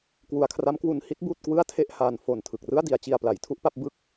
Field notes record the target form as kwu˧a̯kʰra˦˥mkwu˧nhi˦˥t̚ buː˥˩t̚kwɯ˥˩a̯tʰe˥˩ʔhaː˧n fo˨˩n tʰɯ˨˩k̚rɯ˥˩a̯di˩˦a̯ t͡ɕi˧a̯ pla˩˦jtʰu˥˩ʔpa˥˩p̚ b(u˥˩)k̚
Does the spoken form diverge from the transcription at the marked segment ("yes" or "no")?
yes